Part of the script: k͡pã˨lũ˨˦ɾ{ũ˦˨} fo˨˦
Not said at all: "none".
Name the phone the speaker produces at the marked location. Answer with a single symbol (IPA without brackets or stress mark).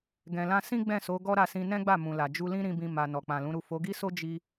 u˦˨